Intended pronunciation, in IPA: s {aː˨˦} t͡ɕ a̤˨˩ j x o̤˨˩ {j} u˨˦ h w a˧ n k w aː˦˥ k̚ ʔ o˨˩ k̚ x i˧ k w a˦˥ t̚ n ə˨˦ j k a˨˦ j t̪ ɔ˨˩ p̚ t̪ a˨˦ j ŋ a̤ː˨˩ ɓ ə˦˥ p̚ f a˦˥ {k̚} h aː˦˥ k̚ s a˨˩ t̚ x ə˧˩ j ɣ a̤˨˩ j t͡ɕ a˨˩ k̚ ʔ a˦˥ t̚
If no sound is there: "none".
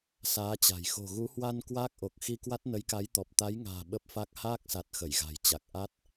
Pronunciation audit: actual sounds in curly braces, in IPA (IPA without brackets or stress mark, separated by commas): aː˨˦, ɣ, k̚